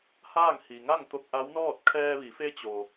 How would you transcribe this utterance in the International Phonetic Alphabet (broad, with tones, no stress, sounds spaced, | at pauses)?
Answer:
h aː˥˨ ŋ h i˩ ŋ a˥˨ ŋ t̪ o˧ k̚ ʔ a˧˥ w n ɔː˥˨ t̚ kʰ ɛː˧ ʋ i˩˧ f e˧˥ t͡ɕ o˩